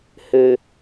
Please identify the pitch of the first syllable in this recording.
low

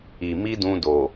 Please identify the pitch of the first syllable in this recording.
low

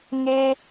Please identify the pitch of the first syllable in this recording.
high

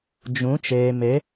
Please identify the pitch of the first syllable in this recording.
rising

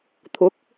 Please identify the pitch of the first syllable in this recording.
rising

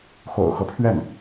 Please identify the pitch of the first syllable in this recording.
low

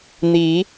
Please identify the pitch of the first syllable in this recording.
rising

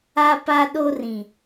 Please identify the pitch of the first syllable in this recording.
high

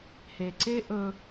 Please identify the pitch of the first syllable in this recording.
low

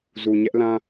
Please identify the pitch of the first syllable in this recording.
low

